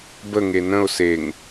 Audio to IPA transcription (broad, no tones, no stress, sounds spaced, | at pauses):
b ə ŋ e n ə̃ ʊ̯ s e ŋ